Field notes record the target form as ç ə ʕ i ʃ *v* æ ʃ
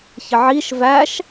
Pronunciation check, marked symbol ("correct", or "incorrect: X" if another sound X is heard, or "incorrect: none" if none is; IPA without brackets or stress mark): correct